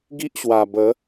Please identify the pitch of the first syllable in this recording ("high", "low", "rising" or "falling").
high